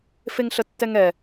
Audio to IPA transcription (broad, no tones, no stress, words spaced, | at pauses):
feŋɬətːɛŋɛ